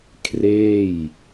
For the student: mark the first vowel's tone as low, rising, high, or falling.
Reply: falling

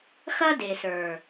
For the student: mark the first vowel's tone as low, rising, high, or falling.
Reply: high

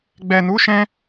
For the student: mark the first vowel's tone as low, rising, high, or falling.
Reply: low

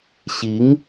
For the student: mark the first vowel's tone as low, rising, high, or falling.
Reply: rising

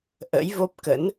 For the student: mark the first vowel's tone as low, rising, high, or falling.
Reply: rising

